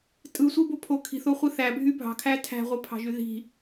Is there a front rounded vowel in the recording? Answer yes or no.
yes